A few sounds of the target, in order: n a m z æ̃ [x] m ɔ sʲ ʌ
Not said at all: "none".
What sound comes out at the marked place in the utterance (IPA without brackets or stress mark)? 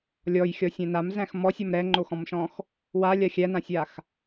x